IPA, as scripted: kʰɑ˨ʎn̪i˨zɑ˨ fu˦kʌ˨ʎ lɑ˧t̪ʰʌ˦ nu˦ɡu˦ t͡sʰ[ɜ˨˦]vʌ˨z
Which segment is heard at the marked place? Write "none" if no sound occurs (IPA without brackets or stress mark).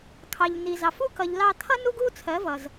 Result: ɜ˨˦